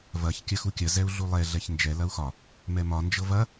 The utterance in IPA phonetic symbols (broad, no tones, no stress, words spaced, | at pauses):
vɐç kʲɐxukʲɐ zɛu̯ɮulˠɛ ɮɛçnd͡ʒɛ lɐu̯xɒ | mɛmɒ nd͡ʒɤvɐ